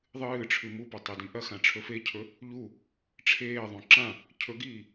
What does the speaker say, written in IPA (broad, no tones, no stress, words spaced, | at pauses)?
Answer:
ðˤɨː ʈ͡ʂʰʉmupɐ tˤedĩʔɐxã ʈ͡ʂʰɵfecʰɵ | ʎu | ʈ͡ʂʰeːðˤõ ǁã | cʰɵɡiː